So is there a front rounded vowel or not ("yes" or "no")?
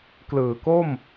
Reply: no